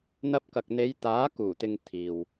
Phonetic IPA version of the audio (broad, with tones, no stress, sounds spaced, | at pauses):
n̪ ɐ˧ p̚ k ɐ˨ k̚ n̪ e˨˧ j t̪ aː˨˥ k uː˨˩ t̪ ɪ˨ ŋ t̪ʰ iː˨ w